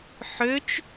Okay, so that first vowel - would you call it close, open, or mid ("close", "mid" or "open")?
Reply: mid